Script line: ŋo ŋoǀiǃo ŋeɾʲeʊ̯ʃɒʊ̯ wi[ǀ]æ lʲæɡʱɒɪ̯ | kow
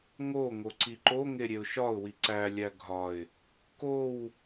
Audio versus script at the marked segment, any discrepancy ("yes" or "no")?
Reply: no